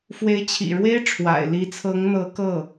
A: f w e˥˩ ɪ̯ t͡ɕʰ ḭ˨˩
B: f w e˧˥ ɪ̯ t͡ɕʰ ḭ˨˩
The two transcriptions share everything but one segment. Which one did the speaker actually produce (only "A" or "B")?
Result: B